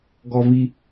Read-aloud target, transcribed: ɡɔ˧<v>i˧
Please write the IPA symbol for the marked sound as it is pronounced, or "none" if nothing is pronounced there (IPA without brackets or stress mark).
v